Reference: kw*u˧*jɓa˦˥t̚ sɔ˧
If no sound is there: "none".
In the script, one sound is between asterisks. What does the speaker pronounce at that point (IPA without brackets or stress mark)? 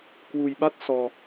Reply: u˧